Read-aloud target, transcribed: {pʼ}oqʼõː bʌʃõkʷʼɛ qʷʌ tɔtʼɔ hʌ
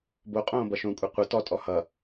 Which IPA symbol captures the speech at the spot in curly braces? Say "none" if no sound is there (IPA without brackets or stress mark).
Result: b